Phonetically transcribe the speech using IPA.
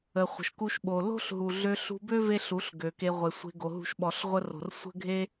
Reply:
ə˨ χʷ ə̤˨ ʃ k u˧ ʃ ɓ o˨ l o̤˦ ɬ ɦ u˨ ɮ ø˧ ɬ ṳ˧ b ø˦ v e˦ ɬ u˨˦ ɬ ɡ ø˨ k e˧ ʁʷ e˨ sʷ e̤˧ ɡ o˨ ɦ ṳ˧ ʃ ɓ ɔ˨ ɬ ʁʷ ə˧ r o̤˨ r sʷ ə̤˦ ɡʱ e˦

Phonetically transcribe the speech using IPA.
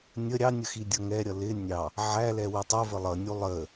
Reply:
nʲ ə ɾʲ ɑ nʲ ə x i dʲ ʌ ŋ ɛ ɾʲ ʌ l ɪ nʲ ɑ | ʕ æ l ɛ w u tˤ ə v ə lˠ ʌ nʲ u lˠ ə

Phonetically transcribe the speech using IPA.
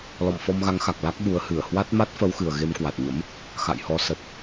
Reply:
l ɔ̰˧˨ m f ɔ˧ m ɣ a˨˦ ŋ x a˨˩ k̚ l a˦˥ k̚ ɓ u˨˦ ə̯ h ɨ˧˩ ə̯ h w a˦˥ t̚ m a˦˥ t̚ f ə˨˦ w x ɨ˨˩ ə̯ ɣ e˧ m k w a˨˩ t̚ ɲ ə̰˧˥ m | x a̰˧˨ j h ɔ˨˦ s ə˨˩ t̚

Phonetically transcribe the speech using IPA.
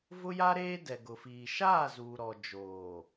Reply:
v ʊ˦ j a˦ ɾ eː˦ d ɛ˨ ɡ ʊ˨ f iː˨ ʃ aː˦˨ z uː˨ ɾ ɔ˨ d͡ʒ oː˨

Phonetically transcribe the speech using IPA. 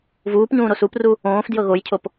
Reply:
v uː p ɲ ũː ɾ o s u p r u | õː f d j ɤ ɣ o j cʰ o p

